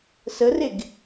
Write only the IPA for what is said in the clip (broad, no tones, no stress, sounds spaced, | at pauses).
s ə r e ɡ